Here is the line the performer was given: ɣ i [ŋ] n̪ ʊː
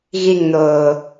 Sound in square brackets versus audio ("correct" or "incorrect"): correct